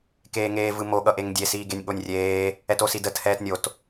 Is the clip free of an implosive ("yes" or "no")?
no